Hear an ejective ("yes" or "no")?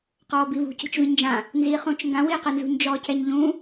no